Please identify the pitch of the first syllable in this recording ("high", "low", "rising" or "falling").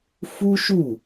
high